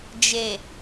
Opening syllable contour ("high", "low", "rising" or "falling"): low